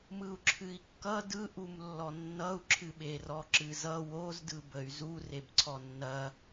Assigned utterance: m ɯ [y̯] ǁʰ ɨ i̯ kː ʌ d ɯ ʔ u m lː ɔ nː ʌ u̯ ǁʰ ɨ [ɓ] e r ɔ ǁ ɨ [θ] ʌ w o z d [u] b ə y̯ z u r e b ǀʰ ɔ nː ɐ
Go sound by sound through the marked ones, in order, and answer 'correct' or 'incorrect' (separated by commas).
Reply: incorrect, correct, incorrect, incorrect